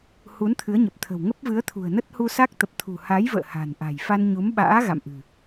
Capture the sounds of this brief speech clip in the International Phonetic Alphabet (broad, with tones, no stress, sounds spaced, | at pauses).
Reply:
h u˨˦ n t̪ʰ ɨ˨˦ ə̯ ɲ ə˨˩ p̚ t̪ʰ ə̤˨˩ w ŋ ə˦˥ p̚ v ɨ˨˦ ə̯ t̪ʰ ṳ˨˩ ə̯ n ə˦˥ t̚ h u˧ s a˦˥ k̚ t̪ ə˨˩ p̚ t̪ʰ ṳ˨˩ h a˨˦ j v ə̰ː˧˨ h a̤˨˩ n ʔ a̤˨˩ j f a˧ n ɲ u˨˦ m ɓ a̰ː˧˥ ɣ a̰˧˨ m ʔ ɨ̤˨˩